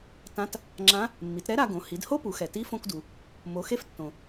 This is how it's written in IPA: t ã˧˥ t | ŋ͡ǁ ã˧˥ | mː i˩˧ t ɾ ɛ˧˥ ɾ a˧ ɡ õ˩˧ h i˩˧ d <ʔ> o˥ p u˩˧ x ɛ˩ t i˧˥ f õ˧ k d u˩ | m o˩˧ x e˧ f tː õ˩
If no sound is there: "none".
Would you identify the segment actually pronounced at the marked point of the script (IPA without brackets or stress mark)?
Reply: h